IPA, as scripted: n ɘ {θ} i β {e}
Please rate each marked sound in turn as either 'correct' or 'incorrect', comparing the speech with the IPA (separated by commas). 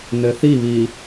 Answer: correct, incorrect